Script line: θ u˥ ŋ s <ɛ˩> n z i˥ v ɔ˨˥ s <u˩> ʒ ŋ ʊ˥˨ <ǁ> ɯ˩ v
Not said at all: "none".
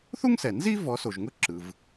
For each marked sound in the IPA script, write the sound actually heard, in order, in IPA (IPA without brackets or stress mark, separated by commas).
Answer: ɛ˩, o˩, ǁ